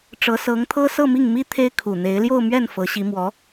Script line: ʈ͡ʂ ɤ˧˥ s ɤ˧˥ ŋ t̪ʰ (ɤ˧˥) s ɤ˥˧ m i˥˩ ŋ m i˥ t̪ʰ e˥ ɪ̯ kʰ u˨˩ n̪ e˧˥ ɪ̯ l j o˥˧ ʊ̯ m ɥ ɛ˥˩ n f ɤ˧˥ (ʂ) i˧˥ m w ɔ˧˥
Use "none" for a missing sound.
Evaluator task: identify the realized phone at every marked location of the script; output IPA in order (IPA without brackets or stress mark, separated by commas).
ɤ˥, ɕ